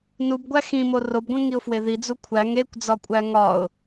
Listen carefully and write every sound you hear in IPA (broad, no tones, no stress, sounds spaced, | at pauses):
n u b ɡʷ æ x ĩ m o r o b ɡʷ ẽ ŋ i ʊ̯ f w e ð i d͡z u kʷʰ æ ŋ e kʷ d͡z ɒ kʷʼ æ ŋ ɒ ʊ̯